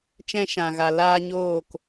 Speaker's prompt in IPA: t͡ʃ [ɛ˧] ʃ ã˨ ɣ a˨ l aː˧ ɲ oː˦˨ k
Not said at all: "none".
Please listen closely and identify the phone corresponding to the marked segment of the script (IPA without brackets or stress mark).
ɛ̃˧